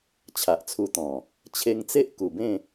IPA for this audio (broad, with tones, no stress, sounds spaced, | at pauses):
t͡ɕʰ a˨ ʔ t͡sʰ u˧ t̪ ɔ̃˨˩ | t͡ɕʰ e˧ ŋ t͡s e˦ ʔ k u˨˩ b ẽ˥˧